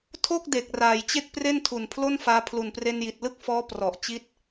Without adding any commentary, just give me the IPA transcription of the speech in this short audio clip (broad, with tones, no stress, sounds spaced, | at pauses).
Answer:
tʰ o˥˩ k̚ d e˨˩ k̚ r aː˨˩ j t͡ɕ e˥˩ k̚ p r e˥˩ n tʰ u˨˩ n pʰ l o˥˩ n f aː˧ pʰ l u˨˩ n p r e˧ n j i˨˩ t̚ l ɯ˥˩ k̚ f ɔː˦˥ p r ɔ˨˩ ʔ t͡ɕ i˦˥ t̚